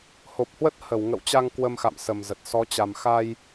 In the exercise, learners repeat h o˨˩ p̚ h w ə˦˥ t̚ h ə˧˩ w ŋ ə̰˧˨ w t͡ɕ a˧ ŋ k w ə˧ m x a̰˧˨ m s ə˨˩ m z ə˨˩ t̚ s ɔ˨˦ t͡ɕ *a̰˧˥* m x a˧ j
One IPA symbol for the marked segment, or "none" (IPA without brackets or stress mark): a˨˩